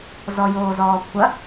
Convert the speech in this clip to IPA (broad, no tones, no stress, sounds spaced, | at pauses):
z ɔ j oː z ɔː kʷʰ ɐ